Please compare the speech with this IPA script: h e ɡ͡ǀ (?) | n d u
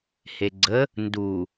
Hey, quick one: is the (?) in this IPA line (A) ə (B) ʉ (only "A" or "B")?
A